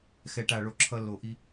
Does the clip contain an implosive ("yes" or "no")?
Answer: no